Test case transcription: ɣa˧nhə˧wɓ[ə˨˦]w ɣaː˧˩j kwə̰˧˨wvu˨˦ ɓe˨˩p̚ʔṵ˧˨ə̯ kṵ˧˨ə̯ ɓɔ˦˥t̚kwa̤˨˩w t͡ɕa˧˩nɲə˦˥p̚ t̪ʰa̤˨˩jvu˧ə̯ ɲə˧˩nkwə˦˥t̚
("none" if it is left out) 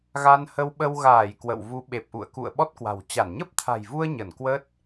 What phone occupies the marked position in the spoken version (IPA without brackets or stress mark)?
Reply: ə˧